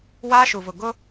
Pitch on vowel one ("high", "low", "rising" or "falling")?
high